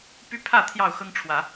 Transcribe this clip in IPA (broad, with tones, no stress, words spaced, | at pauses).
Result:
py˦pʰä˥˨ t̪ʰjɑ˥˨ʊ̯xɤ˦ŋʈ͡ʂʰwä˨˦